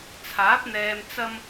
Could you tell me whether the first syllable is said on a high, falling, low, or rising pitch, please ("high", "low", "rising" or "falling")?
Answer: rising